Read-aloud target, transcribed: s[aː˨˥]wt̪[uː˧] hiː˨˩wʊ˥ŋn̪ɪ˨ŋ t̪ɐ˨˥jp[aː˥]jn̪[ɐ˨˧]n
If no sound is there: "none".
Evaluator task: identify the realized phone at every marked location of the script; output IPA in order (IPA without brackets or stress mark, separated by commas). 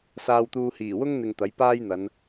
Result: aː˧, uː˧, aː˥, ɐ˨˧